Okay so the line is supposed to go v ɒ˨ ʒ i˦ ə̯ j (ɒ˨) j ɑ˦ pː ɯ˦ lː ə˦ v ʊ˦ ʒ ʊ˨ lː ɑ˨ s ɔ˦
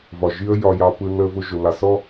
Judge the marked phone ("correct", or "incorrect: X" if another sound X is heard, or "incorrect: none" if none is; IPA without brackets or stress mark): incorrect: ɒ˦